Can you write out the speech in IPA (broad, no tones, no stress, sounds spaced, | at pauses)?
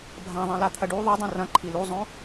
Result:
bʱ ã ðˤ ĩ l a t̪ʰ ɐ ɖ u ðˤ u dˤ ũ r ɐ̃ ǃʰ i l u zˤ õ